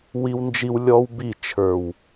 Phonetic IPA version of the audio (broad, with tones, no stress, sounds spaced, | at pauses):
w i˦ w n d͡ʒ i˦ w lʲ ɔ˦ w b i˦˨ t͡ʃʰ ə˞˨ w